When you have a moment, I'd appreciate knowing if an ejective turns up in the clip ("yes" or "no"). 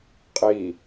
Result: yes